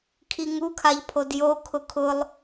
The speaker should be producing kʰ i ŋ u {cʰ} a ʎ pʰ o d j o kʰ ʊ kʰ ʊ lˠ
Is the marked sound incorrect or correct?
incorrect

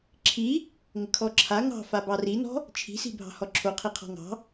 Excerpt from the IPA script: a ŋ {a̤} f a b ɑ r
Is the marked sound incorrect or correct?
incorrect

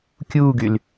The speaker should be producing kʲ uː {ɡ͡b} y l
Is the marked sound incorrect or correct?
incorrect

